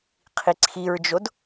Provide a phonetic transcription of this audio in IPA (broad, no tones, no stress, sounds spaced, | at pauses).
qʰ i ǀʰ i ɹ d͡ʒ o d